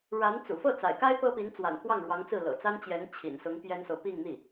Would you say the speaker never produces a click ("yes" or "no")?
yes